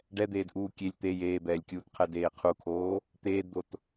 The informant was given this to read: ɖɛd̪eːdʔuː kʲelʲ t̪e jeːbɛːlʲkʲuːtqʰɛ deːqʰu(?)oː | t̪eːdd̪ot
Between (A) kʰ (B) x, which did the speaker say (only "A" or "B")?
A